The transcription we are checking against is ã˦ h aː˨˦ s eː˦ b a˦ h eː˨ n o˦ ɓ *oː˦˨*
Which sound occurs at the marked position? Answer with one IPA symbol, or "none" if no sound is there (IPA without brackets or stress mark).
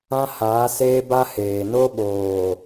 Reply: oː˨